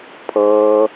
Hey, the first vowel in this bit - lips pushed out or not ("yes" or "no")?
no